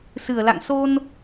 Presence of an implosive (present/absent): absent